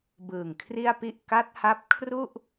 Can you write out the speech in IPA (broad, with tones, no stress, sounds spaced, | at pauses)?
b ɯː˨˩ ŋ kʰ r i˥˩ a̯ p i˥˩ ʔ k a˦˥ t̚ h a˦˥ p̚ kʰ r u˥˩ ʔ